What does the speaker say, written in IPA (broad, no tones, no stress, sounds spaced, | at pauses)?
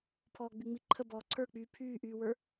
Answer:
pʰ ɔː ɡ͡b y ŋ͡m i ǃʰ ə b ɔː ǀʰ ə˞ k͡p yː pʰ yː ʔ yː w ə˞